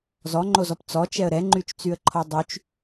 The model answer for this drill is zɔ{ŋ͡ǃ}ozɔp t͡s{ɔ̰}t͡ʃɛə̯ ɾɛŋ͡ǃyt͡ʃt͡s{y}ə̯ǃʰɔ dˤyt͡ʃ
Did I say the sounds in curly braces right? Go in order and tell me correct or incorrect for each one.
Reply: correct, incorrect: ɔ, correct

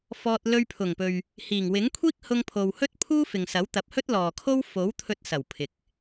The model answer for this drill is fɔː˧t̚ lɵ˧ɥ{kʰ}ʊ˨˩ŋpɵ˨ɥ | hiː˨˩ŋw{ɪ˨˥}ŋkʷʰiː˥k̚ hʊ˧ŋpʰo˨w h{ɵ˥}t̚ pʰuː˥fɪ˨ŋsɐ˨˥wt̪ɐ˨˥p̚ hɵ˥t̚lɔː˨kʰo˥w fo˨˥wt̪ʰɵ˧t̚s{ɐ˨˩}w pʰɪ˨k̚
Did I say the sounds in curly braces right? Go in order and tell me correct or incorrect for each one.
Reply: incorrect: pʰ, correct, correct, correct

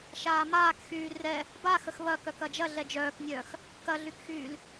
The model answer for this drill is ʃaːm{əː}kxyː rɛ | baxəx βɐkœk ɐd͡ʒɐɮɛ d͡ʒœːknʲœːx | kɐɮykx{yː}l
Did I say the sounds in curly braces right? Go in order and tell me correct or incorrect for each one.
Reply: incorrect: aː, correct

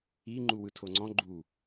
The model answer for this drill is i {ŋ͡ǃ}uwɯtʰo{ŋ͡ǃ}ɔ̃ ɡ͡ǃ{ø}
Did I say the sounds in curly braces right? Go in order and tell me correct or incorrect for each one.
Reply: correct, incorrect: ŋ͡ǀ, incorrect: u

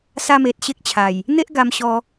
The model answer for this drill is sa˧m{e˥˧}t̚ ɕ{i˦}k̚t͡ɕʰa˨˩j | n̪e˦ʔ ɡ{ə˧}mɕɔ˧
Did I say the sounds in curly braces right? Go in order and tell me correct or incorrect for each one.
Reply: incorrect: e˨, incorrect: e˦, incorrect: a˧

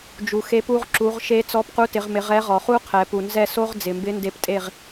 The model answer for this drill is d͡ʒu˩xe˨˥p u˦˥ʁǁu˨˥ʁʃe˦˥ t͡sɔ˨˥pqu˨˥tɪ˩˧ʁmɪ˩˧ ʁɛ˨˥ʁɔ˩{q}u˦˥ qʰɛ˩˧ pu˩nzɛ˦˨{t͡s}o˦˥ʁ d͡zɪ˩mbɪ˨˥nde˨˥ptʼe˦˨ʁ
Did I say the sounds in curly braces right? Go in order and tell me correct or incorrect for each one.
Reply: incorrect: χ, incorrect: s

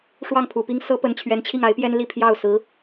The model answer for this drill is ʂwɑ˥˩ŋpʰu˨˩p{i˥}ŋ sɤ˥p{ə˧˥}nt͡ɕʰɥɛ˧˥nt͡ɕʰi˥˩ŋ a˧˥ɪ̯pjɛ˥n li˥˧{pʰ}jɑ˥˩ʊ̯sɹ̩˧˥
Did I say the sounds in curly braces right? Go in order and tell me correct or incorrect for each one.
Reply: correct, correct, correct

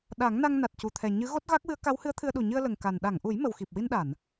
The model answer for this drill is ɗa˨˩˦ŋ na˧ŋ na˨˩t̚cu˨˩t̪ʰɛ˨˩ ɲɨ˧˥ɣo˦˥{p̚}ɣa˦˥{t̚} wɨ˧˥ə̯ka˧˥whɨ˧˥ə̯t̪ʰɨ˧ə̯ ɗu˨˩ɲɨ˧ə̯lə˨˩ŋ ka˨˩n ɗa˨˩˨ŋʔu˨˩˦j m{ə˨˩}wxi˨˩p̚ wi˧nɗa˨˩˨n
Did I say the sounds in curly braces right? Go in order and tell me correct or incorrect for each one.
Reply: incorrect: t̚, incorrect: k̚, correct

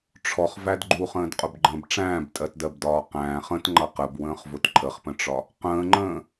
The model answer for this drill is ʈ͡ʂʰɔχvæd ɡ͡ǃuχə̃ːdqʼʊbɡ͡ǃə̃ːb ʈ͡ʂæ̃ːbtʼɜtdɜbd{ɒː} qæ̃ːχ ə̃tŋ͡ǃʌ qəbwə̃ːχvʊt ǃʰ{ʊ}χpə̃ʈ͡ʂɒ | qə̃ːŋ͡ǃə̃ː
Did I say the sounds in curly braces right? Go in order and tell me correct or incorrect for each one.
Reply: correct, incorrect: ə

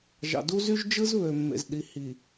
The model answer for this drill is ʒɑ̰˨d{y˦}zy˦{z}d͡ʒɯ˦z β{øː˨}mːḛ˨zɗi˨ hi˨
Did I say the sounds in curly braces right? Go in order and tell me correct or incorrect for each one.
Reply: incorrect: u˦, incorrect: ʒ, incorrect: ø˨

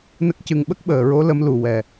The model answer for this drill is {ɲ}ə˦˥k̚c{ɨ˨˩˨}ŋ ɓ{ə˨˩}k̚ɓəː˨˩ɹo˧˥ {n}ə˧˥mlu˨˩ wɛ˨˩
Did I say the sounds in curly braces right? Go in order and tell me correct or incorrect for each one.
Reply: incorrect: n, incorrect: ɨ˧, incorrect: ə˦˥, incorrect: l

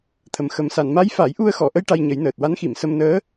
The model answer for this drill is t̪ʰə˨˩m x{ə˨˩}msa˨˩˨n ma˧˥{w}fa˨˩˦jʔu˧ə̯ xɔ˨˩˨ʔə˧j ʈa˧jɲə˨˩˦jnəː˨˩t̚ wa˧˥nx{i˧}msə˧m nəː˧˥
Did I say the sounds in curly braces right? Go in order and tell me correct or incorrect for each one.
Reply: correct, incorrect: j, incorrect: i˨˩˨

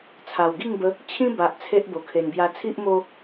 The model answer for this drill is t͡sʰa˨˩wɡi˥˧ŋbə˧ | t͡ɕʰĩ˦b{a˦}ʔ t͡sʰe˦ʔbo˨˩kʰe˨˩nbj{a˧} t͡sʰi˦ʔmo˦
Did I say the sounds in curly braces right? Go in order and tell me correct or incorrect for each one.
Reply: incorrect: a˨, correct

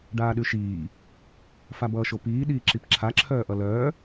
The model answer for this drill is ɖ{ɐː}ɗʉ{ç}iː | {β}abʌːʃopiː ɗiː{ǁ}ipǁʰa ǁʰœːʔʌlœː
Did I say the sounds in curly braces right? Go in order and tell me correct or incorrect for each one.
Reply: incorrect: aː, incorrect: ʃ, incorrect: f, correct

